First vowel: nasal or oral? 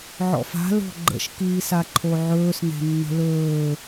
oral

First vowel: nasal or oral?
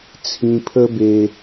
nasal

